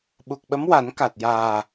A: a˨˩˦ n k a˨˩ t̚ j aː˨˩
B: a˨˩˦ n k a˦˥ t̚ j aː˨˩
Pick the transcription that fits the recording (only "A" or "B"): A